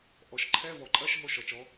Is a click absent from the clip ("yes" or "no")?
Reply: no